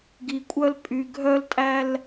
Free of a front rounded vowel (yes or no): no